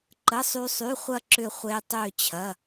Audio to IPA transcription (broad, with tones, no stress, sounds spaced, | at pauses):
ǃ ə˧˥˧ sˤ y˦˥ sˤ y˧˥˧ χʷ ɐ˥˧ ǁ ʏ˥˧ χʷ e˦˥ tˤ ø˥˧ t͡ɕʰ ɐ˧˥˧